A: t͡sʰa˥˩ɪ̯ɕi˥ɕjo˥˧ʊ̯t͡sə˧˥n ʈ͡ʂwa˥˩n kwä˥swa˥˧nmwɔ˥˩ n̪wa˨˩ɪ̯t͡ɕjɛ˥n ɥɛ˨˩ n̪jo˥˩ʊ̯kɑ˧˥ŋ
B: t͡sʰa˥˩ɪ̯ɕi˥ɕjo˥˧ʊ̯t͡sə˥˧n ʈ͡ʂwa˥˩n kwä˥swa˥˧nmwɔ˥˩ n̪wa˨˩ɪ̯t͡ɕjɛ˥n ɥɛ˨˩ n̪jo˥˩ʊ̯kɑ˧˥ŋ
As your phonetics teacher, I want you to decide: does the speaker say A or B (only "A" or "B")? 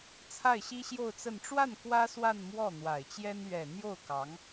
B